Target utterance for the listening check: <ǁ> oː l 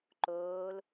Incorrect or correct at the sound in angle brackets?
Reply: incorrect: ǃ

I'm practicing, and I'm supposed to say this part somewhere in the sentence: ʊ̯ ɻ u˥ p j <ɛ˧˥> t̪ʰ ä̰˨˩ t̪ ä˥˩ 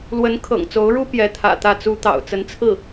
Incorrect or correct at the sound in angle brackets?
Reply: correct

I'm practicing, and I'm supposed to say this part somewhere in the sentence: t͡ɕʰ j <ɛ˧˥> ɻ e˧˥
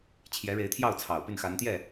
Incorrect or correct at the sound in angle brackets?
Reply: correct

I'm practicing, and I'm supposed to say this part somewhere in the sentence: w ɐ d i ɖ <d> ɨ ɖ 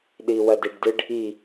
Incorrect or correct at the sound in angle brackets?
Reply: correct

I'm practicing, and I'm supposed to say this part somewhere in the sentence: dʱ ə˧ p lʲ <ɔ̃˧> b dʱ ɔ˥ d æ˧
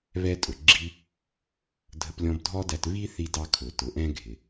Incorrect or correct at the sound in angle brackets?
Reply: correct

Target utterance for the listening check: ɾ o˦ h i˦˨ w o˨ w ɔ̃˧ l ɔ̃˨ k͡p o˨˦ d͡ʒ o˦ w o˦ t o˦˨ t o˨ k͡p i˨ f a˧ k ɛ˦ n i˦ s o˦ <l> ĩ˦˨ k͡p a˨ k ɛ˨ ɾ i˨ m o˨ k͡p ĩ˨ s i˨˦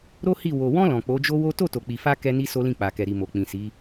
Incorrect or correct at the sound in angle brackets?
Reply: correct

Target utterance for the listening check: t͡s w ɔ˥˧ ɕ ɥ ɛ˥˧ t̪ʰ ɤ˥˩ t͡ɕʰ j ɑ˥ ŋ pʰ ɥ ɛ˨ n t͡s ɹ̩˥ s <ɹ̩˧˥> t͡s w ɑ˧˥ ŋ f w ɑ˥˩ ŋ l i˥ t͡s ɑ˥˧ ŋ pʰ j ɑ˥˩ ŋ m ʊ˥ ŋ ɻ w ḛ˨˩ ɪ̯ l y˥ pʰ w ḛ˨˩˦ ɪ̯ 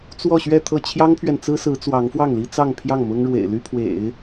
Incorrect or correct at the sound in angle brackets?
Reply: correct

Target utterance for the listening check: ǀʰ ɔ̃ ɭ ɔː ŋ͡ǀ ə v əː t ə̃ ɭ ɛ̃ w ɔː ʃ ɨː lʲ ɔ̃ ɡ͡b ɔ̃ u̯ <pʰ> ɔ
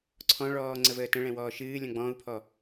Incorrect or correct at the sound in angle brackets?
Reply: correct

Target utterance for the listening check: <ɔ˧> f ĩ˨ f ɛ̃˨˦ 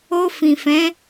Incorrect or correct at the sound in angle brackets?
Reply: incorrect: o˧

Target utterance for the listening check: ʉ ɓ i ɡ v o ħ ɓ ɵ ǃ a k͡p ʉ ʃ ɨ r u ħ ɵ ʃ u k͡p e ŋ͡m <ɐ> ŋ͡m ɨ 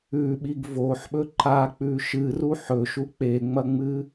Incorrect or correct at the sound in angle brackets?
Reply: correct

